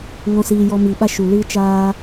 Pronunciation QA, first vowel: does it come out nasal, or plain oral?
nasal